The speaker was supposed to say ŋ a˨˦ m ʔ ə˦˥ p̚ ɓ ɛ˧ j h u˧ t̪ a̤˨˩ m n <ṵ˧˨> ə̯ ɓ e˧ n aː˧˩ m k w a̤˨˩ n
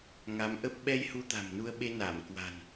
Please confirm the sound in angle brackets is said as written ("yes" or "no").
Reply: no